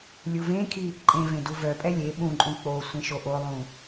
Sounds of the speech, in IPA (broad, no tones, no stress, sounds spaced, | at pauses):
lʲ u v ẽ kʰ i | ǃʼ ẽ v ẽ d u v œ pʼ ɛ lʲ e ɓ ũ ǃʼ ũ k͡p o sʷ ẽ ʃ o ʔ o lˠ ũ